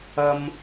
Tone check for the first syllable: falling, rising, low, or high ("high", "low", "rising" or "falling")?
high